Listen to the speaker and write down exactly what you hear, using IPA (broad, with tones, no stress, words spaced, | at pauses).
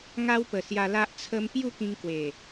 ŋa˦wpə˨˩sja˧la˦ʔ t͡sʰə˧m pju˥˧kĩ˧ŋkwe˨˩